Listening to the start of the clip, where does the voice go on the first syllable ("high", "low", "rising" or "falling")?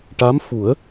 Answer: rising